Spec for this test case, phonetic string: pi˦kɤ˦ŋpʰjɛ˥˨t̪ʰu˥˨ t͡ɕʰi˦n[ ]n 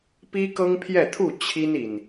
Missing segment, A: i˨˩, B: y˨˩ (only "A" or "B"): A